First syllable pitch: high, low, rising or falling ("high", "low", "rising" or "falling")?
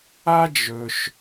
high